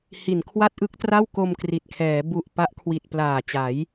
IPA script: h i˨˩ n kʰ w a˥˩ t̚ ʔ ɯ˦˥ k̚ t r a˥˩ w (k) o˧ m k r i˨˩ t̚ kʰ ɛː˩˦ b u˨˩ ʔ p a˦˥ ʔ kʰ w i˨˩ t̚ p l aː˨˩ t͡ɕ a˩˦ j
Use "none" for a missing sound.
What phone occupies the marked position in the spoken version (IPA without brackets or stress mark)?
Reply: k